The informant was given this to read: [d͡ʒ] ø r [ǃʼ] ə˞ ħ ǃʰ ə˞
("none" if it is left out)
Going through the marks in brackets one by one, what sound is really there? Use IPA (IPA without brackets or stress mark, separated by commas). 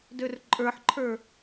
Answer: d, ǃʼ